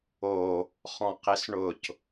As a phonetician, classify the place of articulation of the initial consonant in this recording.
uvular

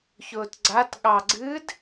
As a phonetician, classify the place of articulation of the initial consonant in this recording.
palatal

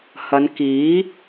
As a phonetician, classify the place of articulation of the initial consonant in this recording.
glottal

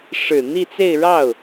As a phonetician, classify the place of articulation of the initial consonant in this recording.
retroflex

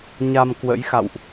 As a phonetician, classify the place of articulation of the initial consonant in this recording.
palatal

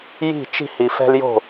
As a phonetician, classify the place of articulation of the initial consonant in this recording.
palatal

